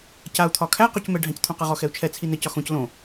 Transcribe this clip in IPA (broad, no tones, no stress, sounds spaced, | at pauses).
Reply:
c a u̯ t̪ʰ ɒ kʰ æ q o c m ɛ ɖʱ æ̃ c t̪ʰ õ q ɘ ʁ ɔ x ɛ u̯ t͡ʃʰ ɛ t͡sʰ i n ɘ c ɒ x õ c l õ